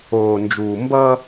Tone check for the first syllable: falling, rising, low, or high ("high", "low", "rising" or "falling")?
low